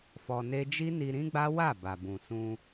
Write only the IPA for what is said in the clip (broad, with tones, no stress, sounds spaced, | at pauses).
f ɔ˧ n e˦ d͡ʒ i˦ n i˧ ɾ ĩ˦ ɡ͡b a˦ w a˦˨ b a˨ b ũ˨ s ũ˧